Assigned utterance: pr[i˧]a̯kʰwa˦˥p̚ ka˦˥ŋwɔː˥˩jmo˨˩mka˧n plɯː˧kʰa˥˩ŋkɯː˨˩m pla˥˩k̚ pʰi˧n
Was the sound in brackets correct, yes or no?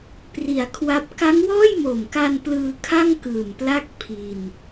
no